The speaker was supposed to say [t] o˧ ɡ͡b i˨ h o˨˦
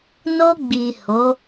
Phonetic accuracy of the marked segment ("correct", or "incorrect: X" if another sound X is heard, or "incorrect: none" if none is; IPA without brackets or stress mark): incorrect: n